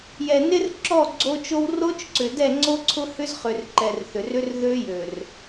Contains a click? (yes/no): yes